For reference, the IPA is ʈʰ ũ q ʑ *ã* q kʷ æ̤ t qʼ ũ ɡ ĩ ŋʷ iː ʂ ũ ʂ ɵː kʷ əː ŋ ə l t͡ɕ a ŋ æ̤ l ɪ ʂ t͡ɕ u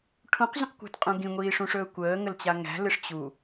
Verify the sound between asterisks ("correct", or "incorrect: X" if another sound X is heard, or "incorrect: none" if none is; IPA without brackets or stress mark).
incorrect: ə̃